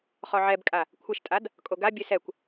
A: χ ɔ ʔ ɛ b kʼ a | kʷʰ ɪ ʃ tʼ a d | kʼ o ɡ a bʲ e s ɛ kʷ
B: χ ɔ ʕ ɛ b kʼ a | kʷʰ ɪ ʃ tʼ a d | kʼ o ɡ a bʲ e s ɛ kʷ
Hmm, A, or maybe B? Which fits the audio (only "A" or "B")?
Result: B